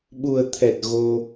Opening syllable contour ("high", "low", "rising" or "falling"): low